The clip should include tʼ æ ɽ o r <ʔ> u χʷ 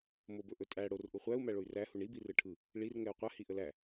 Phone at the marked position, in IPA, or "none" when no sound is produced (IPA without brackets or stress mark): ʔ